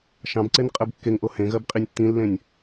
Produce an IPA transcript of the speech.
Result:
ʃ ɑ̃ b ǀ e n qʼ ɜ b kː e ŋ ʔ o h ẽ ɣ ɜ b qʼ i nʲ tː ĩ lː ẽ nʲ

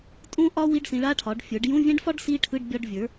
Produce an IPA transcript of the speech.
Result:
tʼ ũ˦˥ ʔ ɒ˦˥ w i˧˥˧ ɖ s ĩ˩˥ ɭ a˧˥˧ ʈʰ ɒ˩˥ ɖ fʲ ə˞˩˥ ɖ j ũ˧˥˧ vʲ ɛ̃˦˥ ɖ f ɒ˦˥ ɖ s i˧˥˧ ʈʰ ɯ˧˥˧ ɖ bʲ ɒ˧˥˧ ɖ vʲ ə˞˩˥

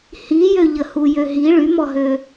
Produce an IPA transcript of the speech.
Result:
h i j ø ʎ ə h u j ø ɦ i ɭ y m ɔ ɦ ø

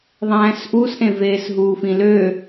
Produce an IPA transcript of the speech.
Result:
ðˤ æ̃ː s ʔ u s ʔ ẽ v eː s ɦ uː f ĩ l ø

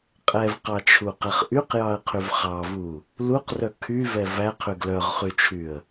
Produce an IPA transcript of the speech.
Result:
qʼ ɛ v q ɑ t͡ʃʰ u q ɛ χ ʔ y q j ɑ ə̯ qʰ y v χ ɑ v u | l u q r œ kʰ y v ɛ v æ qʰ y ɡ l œ ʁ χ y t͡ʃʰ y ə̯

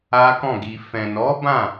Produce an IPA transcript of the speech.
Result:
a˦ k ɔ̃˦˨ ɡ i˧ f ɛ̃˨ n ɔ˨˦ b ã˦˨

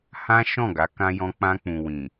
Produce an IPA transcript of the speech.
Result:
h ã˦ ʃ ɔ̃˦˨ ɡ a˨˦ k ã˧ j ɔ̃˧ k͡p ã˧ k͡p ũ˨ w ĩ˨

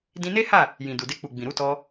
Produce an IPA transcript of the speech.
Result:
d ĩ˧ n e˦ h a˦˨ | j ĩ˨ d u˨ d e˧ k͡p u˨ ɡ͡b ĩ˨ ɾ u˧ t ɔ˧

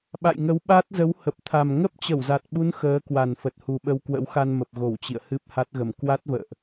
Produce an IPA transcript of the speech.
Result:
ɓ a̰˧˨ j ŋ ə˨˦ w ɓ a˦˥ t̚ z ə˨˦ w h ə˨˩ p̚ t̪ʰ a˨˩ m ŋ ə˦˥ p̚ t͡ɕ ə˧˩ w z a˨˩ t̚ ɓ u˨˦ n x əː˨˦ k w a˨˩ n f ə˨˩ t̚ h u˨˩ ɓ ə˧ w k w ə̰˧˥ w x a˧ n m ə˨˩ p̚ ɣ o˧˩ w t͡ɕ ḭ˧˨ ə̯ h ɨ˦˥ p̚ h a˦˥ t̚ ɣ ə˧˩ m k w a˦˥ t̚ v ə̰ː˧˨ ʔ

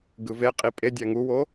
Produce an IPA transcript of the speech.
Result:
ɡ ɯ v e qʼ i pʼ e dʲ æ ŋ u w o

